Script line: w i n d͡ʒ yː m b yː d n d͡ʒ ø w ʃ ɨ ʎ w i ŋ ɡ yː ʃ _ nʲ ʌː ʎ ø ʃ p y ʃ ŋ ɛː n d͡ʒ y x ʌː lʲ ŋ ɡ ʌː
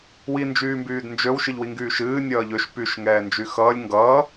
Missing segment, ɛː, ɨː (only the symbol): ɨː